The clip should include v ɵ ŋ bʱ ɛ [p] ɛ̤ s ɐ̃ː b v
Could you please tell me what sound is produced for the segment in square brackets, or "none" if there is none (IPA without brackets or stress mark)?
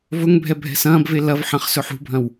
bʱ